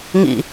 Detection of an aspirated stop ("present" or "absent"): absent